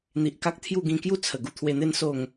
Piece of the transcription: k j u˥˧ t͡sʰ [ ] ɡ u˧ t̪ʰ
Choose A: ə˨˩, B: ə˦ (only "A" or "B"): A